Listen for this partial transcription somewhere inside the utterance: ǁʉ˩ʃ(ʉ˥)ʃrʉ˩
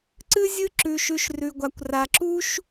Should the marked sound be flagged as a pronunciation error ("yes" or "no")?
yes